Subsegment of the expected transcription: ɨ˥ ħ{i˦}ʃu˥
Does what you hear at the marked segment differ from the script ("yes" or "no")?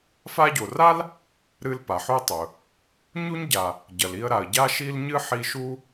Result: no